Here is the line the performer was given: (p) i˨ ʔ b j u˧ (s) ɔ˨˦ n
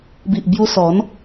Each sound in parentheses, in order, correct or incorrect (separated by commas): incorrect, correct